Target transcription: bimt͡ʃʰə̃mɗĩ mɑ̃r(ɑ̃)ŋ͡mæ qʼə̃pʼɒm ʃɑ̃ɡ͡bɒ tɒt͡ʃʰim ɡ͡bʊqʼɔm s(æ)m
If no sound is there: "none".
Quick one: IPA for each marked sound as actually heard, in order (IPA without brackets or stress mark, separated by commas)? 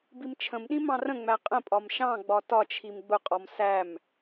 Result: ə̃, æ